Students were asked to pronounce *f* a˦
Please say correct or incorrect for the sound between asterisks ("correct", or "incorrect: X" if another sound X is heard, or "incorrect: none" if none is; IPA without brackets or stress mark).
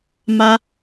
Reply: incorrect: m